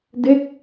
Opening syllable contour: falling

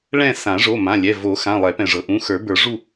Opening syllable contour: falling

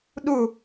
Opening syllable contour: falling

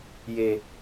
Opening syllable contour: low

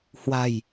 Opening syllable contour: low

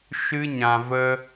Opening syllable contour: high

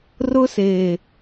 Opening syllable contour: high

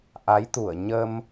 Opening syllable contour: rising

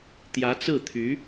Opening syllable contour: rising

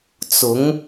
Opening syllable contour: rising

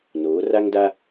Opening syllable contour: rising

